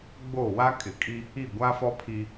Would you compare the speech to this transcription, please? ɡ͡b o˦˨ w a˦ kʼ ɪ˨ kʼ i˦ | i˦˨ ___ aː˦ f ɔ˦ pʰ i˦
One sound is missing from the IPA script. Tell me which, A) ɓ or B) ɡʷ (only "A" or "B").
B